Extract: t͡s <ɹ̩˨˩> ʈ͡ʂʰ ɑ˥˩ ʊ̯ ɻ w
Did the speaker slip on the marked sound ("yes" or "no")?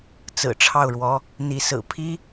no